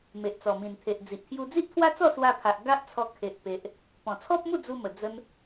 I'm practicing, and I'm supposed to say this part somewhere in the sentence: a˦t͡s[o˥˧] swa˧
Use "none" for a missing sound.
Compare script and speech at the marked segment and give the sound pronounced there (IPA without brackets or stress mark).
ɔ˥˧